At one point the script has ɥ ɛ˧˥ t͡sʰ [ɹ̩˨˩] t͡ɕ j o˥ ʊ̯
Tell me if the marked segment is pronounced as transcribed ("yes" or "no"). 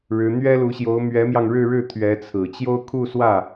yes